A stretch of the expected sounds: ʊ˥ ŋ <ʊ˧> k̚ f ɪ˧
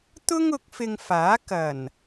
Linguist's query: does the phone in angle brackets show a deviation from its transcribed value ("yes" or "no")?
yes